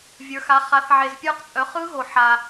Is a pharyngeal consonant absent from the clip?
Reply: no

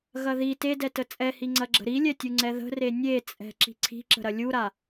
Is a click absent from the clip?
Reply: no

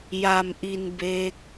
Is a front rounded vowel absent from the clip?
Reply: yes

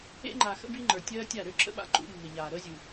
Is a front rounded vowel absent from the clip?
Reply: no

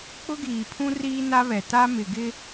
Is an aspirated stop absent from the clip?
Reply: no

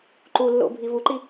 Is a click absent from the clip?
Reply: no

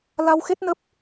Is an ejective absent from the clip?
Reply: yes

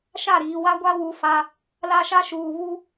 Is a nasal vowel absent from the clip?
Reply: yes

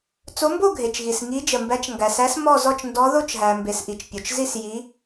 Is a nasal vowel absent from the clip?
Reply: yes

